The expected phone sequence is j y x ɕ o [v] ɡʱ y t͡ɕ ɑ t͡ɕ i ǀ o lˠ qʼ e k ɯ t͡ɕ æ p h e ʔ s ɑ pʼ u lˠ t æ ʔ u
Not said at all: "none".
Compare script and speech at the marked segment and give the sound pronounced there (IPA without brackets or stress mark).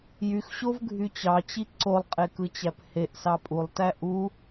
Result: v